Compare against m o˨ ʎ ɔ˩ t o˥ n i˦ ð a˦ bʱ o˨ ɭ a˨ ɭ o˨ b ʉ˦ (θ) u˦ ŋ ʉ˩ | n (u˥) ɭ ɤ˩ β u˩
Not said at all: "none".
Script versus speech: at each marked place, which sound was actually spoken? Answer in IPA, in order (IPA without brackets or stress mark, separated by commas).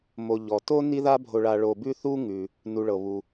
θ, u˨